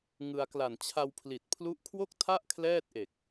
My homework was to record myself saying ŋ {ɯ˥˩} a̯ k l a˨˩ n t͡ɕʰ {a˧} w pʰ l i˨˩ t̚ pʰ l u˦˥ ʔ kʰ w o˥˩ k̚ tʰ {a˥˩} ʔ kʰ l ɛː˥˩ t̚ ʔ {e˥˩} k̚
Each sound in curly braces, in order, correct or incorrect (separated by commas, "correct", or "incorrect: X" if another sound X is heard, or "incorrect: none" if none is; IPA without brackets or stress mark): incorrect: ɯ˧, correct, correct, incorrect: e˨˩